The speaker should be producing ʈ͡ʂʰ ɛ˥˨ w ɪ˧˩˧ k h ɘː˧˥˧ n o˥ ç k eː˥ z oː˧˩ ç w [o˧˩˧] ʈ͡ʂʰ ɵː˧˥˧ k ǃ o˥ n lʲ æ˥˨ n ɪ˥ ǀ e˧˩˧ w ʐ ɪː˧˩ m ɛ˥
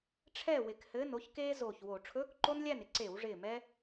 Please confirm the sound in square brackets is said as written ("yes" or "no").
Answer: yes